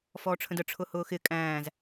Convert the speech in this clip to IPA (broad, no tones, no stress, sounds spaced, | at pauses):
f ɔː ʈ͡ʂʰ ə̃ d ə ʈ͡ʂʰ ʊ h ʊː x ɪ kʼ æ̃ː z